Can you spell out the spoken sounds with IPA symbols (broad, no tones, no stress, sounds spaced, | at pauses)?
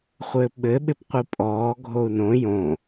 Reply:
χʷ ɘː p ɓ ɘ ɓ ɪ p qʷ i pʼ ɔː ɡʱ o u̯ n õ j õ